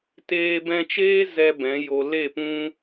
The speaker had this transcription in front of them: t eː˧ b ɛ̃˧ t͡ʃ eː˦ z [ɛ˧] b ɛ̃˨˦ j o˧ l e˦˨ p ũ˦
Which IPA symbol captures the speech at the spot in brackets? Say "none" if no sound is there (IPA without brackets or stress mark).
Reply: ɛ˧